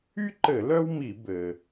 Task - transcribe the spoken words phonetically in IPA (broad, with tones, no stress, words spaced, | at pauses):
y˥ǃɘ˧˩˧ lœ˥wmi˧˩˧ bɘ˩